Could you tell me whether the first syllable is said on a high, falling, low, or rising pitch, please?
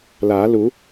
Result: rising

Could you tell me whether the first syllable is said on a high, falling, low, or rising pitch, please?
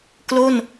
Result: falling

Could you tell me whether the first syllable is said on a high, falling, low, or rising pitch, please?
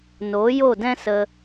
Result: rising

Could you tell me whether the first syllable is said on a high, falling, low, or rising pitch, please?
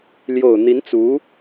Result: low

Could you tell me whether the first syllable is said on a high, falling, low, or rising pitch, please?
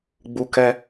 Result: high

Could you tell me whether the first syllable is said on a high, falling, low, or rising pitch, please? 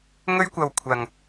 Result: high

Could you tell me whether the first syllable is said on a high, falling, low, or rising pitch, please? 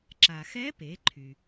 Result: low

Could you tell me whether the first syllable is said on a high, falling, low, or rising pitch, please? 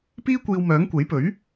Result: high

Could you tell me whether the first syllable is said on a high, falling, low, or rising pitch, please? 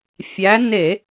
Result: rising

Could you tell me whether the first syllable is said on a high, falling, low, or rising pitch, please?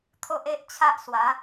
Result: high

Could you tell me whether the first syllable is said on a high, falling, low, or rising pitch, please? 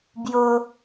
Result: low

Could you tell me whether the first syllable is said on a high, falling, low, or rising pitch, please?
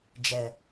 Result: low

